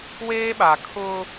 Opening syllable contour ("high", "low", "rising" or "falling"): high